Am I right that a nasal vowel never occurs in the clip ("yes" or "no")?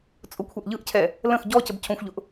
no